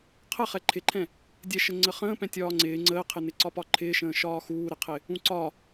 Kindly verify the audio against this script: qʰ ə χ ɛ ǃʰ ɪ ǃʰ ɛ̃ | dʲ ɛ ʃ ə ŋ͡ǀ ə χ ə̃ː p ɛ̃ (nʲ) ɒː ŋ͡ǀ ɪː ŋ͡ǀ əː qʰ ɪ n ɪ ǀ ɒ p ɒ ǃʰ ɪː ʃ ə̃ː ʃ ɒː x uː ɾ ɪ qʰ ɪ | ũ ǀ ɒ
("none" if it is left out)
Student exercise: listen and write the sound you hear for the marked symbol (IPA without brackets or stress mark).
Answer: tʲ